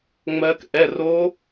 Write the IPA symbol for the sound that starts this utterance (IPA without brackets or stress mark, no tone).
ŋ͡m